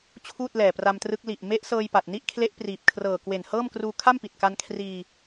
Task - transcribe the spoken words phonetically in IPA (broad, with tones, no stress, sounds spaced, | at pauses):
t͡ɕʰ uː˥˩ t̚ l ɛː˨˩ p r a˧ m t r ɯ˦˥ k̚ l i˨˩ ʔ m e˦˥ ʔ s ɤː˧ j p a˨˩ t̚ n i˥˩ ʔ kʰ l e˦˥ ʔ p r iː˨˩ p̚ kʰ r ɤː˨˩ k w e˨˩ n h ɤː˥˩ m k r uː˧ kʰ a˥˩ m p i˨˩ t̚ k a˧ n kʰ r iː˧